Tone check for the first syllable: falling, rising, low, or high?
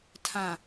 low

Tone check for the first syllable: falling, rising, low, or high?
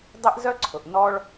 high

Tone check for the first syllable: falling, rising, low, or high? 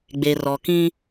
low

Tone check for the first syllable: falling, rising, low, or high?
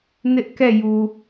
high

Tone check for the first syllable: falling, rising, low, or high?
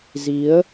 rising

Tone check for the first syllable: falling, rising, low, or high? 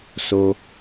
low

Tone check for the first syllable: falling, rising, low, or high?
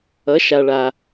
rising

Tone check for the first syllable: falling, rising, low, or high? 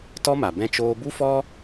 high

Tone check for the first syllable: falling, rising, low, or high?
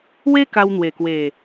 high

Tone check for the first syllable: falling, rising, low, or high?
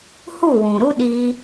falling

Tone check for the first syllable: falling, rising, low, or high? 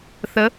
rising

